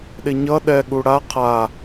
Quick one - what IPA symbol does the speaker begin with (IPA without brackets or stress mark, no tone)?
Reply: ɗ